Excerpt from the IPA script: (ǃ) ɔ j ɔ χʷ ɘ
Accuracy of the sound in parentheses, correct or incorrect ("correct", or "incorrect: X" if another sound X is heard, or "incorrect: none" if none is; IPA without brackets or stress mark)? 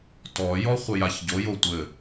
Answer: incorrect: t